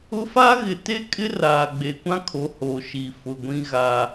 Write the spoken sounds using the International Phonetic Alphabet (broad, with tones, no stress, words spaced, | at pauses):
ʊ˦ fa˦ɣɪ˨te˦kʼɪ˦ raː˨ɡ͡be˨kʷã˦kʰo˨˦ ho˨ʃi˨ fʊ˨ɡʷĩ˦ ɣa˦